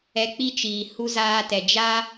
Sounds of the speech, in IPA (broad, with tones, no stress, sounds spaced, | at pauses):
ɛ˧ k͡p i˦ t͡ʃ iː˨ h u˧ z aː˧ t ɛ˨ d͡ʒ a˦